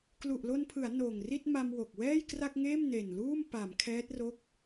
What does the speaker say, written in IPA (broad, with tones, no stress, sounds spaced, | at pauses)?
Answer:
k l u˨˩ ʔ l o˧ n pʰ ɯ˩˦ a̯ n oː˨˩ ŋ r i˥˩ t̚ m a˧ m w o˨˩ k̚ w ɛː˥˩ j k r a˥˩ k̚ ŋ eː˥˩ m n e˨˩ n l uː˥˩ m p a˩˦ m kʰ ɛː˦˥ t̚ r o˥˩ k̚